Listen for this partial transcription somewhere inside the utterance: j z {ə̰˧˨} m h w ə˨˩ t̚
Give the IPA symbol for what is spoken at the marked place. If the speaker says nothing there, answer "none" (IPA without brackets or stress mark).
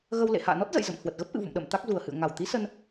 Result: ə̰˧˨